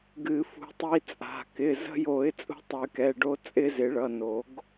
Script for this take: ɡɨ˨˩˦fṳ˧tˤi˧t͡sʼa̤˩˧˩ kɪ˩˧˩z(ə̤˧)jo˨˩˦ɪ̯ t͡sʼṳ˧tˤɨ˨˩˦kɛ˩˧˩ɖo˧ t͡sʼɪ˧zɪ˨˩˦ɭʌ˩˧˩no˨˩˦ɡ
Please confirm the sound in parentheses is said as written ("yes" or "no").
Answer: yes